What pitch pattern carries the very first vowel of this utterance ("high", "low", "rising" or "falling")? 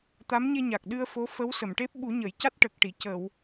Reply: rising